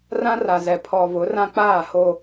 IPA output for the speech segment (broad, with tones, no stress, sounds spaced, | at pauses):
r ã˦ r a˨ z ɛ˨ pʰ ɔ˨ v ʊ˨˦ r ã˦ k͡p aː˦˨ h o˦